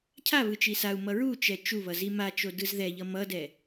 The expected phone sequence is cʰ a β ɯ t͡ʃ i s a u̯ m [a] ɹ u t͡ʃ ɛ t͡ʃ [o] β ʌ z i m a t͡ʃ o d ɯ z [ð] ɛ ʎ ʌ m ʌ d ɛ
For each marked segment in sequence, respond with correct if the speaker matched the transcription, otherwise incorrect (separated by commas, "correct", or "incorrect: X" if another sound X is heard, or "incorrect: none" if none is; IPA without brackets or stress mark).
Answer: incorrect: ʌ, incorrect: u, correct